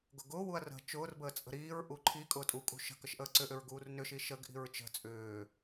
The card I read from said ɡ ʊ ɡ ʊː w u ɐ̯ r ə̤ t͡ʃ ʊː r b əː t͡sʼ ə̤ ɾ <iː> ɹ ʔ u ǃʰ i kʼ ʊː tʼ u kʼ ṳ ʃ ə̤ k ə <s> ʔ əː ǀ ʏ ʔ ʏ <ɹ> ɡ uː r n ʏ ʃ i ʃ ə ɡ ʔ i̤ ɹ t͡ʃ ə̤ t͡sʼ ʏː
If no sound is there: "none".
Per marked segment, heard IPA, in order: iː, ʃ, ɹ

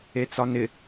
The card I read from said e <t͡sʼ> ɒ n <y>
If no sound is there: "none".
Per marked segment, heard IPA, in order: t͡s, ɪ

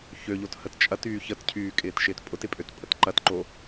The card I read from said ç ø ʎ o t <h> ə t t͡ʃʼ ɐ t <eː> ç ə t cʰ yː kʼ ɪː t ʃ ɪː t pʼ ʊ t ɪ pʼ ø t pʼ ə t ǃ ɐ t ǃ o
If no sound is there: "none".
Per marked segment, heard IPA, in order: h, yː

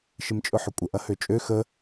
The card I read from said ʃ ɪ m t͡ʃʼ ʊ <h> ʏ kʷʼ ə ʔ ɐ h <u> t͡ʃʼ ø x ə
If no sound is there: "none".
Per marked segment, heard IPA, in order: ħ, ø

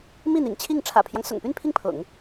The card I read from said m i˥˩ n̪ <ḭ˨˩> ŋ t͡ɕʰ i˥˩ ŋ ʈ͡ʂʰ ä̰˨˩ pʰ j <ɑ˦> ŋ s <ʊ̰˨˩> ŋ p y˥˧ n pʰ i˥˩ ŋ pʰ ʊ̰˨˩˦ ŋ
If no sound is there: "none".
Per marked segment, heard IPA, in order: ḭ˨˩, ɑ˦, ʊ̰˨˩

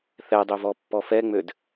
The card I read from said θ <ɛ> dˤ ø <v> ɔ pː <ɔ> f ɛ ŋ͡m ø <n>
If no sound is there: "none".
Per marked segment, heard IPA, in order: ɛ, v, ɔ, d

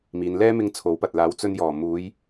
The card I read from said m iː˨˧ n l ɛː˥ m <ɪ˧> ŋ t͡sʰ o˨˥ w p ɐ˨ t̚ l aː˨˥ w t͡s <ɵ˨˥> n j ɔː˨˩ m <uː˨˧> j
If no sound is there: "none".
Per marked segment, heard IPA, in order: ɪ˧, ɵ˧, uː˨˧

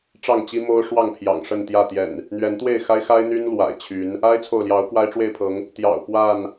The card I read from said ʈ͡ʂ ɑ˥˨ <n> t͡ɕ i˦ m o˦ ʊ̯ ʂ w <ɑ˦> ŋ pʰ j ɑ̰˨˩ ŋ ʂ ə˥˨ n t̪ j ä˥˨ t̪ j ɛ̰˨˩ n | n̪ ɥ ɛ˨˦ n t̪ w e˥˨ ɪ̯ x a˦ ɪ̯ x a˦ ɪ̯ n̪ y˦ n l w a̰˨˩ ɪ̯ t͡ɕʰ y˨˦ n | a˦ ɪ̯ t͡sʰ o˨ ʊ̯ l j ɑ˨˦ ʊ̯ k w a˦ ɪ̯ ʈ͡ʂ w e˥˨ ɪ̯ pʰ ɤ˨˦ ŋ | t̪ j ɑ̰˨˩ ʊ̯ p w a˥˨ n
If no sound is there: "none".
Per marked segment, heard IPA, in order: ŋ, ɑ˥˨

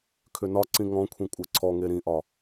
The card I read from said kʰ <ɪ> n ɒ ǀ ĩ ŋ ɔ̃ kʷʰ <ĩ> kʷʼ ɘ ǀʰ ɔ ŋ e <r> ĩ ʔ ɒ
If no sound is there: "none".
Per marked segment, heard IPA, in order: ʏ, ĩ, ɾ

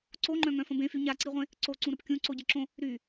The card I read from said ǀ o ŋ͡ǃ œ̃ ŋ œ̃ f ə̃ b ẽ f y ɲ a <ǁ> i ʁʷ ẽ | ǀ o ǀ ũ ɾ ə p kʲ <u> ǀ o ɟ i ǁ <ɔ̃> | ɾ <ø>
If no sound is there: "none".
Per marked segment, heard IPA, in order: ǀ, ũ, õ, y

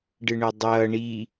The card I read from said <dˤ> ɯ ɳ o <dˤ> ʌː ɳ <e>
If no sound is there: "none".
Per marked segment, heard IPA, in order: ɖ, dˤ, i

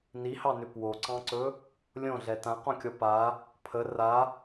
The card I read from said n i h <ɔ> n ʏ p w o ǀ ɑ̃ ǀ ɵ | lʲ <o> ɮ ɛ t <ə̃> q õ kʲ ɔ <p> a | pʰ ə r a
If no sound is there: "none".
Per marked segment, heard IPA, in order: ɑ, õ, ã, p

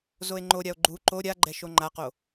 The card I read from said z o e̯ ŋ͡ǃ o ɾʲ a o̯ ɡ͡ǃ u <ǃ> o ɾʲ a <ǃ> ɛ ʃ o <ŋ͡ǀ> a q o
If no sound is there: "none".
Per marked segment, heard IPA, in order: ǃ, ɡ͡ǃ, ŋ͡ǃ

